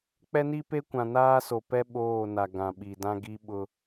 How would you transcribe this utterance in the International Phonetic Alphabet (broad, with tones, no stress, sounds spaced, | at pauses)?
k͡p ɛ˦ n i˦ p e˦ kʷ ã˨ n aː˦ s o˨ p ɛ˦ ɓ oː˦˨ n a˨ ɡ ã˨ ɓ i˨ d ã˦ ɡ i˦ ɓ ʊ˦